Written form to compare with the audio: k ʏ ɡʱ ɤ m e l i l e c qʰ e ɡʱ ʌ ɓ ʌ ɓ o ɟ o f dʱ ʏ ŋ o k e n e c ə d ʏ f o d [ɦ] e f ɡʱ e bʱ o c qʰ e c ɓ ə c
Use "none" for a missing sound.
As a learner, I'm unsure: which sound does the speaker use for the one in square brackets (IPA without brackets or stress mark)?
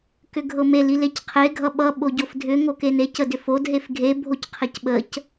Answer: ɦ